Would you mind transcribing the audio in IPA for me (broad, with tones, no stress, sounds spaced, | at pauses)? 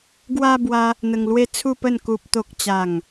ɡ w a˧ b w a˧ | n̪ ə˧ ŋ l w e˦ t͡sʰ u˥˧ p ə˥˧ n k u˦ p̚ t̪ o˦ k̚ t͡ɕ a˥˧ ŋ